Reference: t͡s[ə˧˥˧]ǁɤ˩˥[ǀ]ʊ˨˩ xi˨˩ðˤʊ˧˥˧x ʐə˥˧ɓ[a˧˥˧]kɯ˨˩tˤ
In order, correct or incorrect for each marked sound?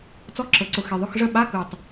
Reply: incorrect: ɔ˧˥˧, correct, correct

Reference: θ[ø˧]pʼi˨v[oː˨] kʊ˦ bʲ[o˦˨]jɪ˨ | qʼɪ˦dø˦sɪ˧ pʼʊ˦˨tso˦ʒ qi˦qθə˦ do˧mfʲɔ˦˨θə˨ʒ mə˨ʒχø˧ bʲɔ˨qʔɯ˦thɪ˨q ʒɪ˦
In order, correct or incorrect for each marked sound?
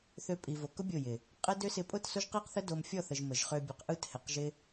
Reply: correct, incorrect: o˨, correct

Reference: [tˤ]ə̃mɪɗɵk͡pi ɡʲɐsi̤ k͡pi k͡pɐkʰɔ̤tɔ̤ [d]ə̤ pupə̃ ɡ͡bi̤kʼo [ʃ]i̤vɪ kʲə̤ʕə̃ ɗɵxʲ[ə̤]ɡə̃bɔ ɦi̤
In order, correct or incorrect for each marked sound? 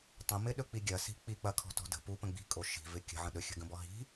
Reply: correct, correct, correct, correct

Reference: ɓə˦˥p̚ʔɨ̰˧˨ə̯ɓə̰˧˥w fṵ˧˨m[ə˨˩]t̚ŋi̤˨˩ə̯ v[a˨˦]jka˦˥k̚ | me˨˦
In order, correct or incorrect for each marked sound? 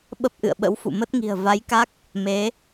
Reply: incorrect: ə˦˥, correct

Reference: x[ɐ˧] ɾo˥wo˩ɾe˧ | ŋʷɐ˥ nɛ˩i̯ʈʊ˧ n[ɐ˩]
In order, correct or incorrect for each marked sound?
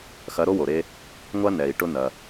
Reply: incorrect: ɐ˧˥, correct

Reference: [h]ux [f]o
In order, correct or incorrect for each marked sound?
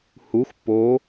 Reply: correct, incorrect: pː

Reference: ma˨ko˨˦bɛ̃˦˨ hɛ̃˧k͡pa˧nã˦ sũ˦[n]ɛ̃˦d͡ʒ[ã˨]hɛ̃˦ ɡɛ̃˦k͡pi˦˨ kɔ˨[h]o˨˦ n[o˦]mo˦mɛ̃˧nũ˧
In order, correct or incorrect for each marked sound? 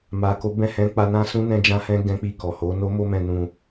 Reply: correct, incorrect: ã˦, correct, correct

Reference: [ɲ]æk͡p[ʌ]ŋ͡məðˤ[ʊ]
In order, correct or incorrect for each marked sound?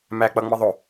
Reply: incorrect: m, correct, correct

